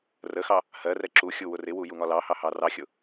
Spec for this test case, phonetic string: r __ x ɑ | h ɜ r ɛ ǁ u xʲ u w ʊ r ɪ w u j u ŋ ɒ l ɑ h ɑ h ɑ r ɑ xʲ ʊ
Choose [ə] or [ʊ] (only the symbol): ə